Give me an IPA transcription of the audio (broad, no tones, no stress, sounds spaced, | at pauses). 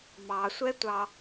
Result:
m ɑ sʷ ɛ tʷ ɑ